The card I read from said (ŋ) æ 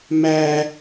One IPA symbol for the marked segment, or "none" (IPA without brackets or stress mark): m